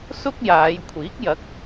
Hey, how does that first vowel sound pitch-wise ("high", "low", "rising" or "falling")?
high